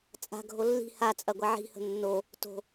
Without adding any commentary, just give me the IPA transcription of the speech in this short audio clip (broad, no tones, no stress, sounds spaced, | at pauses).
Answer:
t͡sʼ a̤ ɡʱ o lː i̤ h a t͡sʼ ɐ ɡʷ a ʕ i̤ h ə̤ nː o | t o̤